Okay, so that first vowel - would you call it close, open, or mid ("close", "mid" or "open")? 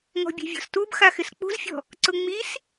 mid